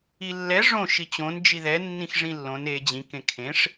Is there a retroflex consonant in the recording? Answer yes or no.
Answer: yes